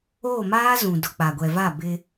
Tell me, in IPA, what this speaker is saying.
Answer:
oː˦˨maː˦zũ˨dʊ˨ k͡pa˨ɡʷɛ˨va˦˨bɪ˦

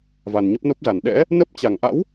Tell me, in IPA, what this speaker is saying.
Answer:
va˨˩nɲə˦˥p̚no˦˥p̚za˧˩n ɗɛ̰˧˥ | nə˦˥p̚ t͡ɕa˧˩ŋʔa̰˧˥w

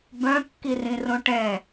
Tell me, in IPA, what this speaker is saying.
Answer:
bœ̃kːirĩrõ ʈɛ̃

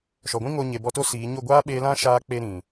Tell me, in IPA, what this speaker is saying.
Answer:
ʃɔ˨ɡʷĩ˦ŋo˧ ɲe˨bɔ˧to˦ siː˨˦ ɲo˦˨ɡʷaː˦ ɓeː˧lã˦ʃaː˧ k͡pe˧ ɾĩ˨

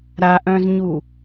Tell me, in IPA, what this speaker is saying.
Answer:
ɾaʔœ̃zɲu

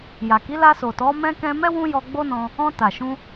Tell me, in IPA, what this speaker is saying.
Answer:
ja˨ki˨˦ la˧so˨tɔ˨˦ mɛ̃˧kɛ̃˧mɛ˦ wũ˦jɔ˧ɡ͡bo˦nɔ̃˧ | ɔ̃˧ ta˨ʃũ˧

